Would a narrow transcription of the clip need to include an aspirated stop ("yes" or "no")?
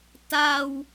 no